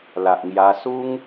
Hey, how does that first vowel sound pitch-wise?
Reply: low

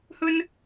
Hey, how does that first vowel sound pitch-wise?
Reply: high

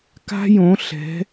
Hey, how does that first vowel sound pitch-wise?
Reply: high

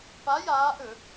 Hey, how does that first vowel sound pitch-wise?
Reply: rising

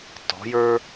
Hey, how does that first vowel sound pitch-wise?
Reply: rising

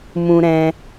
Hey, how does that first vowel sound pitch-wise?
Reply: high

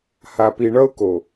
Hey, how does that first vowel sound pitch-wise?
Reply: low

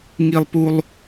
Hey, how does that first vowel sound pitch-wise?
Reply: high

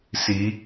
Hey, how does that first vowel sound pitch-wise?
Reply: rising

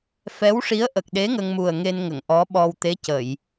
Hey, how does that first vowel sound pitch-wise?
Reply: rising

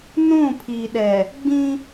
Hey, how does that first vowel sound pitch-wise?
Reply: falling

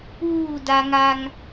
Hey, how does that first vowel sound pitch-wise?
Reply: falling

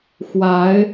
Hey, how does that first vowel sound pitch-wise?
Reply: rising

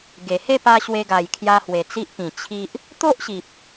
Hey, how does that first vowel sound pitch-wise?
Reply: low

